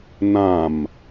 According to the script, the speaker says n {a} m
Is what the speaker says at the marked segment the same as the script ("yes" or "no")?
no